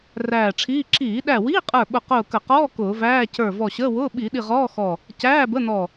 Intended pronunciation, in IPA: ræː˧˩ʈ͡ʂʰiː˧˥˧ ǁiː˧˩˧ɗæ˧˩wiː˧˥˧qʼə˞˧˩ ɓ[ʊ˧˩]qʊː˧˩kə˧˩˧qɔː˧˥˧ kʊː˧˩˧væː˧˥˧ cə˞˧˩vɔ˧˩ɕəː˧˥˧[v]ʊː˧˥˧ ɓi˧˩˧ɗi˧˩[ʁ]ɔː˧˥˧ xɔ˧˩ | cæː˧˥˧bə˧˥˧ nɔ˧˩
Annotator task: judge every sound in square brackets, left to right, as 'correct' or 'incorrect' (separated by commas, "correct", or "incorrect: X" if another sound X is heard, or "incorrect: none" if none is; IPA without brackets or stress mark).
correct, incorrect: w, correct